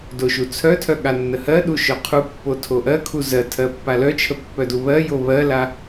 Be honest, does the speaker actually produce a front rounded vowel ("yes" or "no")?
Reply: yes